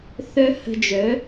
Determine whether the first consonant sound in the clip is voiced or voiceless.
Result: voiceless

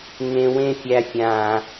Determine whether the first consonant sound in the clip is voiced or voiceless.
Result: voiced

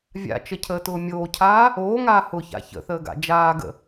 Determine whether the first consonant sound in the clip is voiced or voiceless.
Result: voiced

